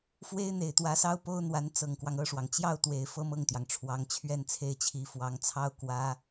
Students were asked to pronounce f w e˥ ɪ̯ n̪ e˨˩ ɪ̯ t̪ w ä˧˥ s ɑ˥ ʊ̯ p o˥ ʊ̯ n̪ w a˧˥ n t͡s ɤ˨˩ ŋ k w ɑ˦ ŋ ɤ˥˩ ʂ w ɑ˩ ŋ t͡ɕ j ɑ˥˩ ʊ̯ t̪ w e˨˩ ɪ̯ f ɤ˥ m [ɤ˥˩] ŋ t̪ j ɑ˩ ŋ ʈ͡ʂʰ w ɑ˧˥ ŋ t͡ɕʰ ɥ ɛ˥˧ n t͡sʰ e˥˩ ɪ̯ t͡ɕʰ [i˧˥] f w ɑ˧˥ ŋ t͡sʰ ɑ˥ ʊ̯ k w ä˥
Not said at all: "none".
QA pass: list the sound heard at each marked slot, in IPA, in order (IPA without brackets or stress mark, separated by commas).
ɤ˥˩, i˧˥